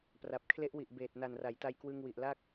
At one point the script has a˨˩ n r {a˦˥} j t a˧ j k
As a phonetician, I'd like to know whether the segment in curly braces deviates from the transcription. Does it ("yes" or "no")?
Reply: yes